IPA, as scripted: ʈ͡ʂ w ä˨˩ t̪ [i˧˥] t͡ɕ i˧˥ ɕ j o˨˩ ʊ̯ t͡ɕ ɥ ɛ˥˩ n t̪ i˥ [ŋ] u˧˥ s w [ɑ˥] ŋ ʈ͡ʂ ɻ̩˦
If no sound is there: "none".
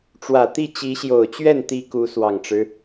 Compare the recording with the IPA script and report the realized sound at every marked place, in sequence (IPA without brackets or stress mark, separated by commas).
i˥˩, k, ɑ˨˩